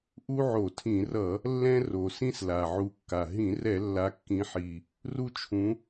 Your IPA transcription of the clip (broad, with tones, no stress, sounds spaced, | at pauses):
ʔ u˦ ʕ o˧˩˧ tʰ ĩ˧˩˧ r ʌ˧˩˧ | lː ɛ̃˦ r o˨˩ s ĩ˦ s l a˨˩ ʕ u˨˦ kː a˨˩ ɦ ĩ˧˩˧ r ɛ˧˩˧ lː a˨˦ kː ĩ˨˦ ħ i˨˩ | r u˦ t͡ʃʰ ũ˨˦